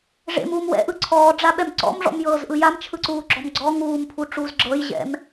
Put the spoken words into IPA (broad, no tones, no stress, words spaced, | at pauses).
ʐḛmuːm wɛ̰ʔɯ ǀʰɔːɖ͡ʐaɓɛm ǀɔ̰mʐɔ̰mjɤːzʔɯ jamt͡ʃʰɯǀuːɡ͡ǁɔm ɡ͡ǀɔ ŋuːmpʰuʈ͡ʂuːz ɡ͡ǁɤjʑɛ̰m